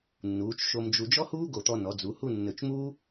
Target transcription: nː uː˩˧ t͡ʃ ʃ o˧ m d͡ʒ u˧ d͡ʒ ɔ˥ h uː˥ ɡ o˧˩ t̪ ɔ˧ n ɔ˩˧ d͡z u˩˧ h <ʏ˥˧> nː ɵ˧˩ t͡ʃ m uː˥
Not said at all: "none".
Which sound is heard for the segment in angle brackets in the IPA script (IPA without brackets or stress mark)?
u˥˧